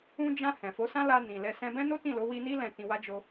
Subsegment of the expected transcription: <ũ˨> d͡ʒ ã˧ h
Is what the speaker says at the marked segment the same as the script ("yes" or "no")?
no